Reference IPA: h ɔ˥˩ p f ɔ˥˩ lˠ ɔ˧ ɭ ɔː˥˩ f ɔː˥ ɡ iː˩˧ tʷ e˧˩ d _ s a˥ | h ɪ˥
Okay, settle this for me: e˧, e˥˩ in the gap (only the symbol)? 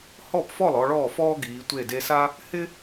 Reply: e˧